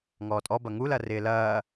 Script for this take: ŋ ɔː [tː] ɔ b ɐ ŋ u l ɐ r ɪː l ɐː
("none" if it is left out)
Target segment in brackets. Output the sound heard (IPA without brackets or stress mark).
tʼ